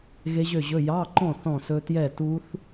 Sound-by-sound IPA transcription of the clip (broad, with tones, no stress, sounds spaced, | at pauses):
ɣ e˦˥ ʑ ø˥˨ ʑ ɵ˧˥˧ j ɑ˧˥˧ ǃ ɔ̃˥˨ θ ɔ̃˥˨ s ɵ˦˥ t j ɛ˥˨ t u˦˥ θ